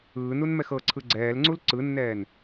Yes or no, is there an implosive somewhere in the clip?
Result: no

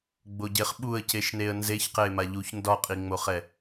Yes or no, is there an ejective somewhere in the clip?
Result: yes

